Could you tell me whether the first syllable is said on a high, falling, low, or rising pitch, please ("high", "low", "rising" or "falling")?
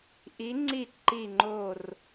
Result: rising